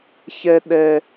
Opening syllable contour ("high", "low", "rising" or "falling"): high